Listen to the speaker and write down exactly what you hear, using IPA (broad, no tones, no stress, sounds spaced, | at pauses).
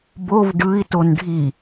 b o v ɖ ɯ i̯ t o n ɖʱ i